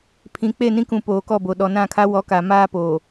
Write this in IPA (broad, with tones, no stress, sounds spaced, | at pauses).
pʰ ĩ˨ k͡p e˦˨ n ĩ˦ k ũ˨ p oː˨ k ɔ˦˨ b o˨ ɗ ɔ˨ n ã˦˨ kʰ a˦ w ɔ˨˦ k a˨ m aː˦ p oː˨